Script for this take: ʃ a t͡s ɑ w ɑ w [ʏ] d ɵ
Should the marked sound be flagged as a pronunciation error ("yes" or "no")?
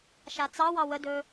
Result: yes